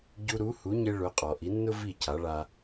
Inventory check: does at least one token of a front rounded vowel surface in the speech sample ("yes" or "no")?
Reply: no